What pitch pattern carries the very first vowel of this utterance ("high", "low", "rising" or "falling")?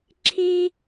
high